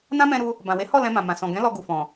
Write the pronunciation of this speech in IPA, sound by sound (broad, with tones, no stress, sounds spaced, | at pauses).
n ã˦ m ɛ̃˧ ɾ u˧ | b ã˨ w e˨˦ h ɔ˦˨ l ɛ̃˧ m ã˨ m ã˨ s ɔ̃˨ ɡ ɛ̃˨˦ l ɔ˧ ɡ u˨ f ɔ̃˨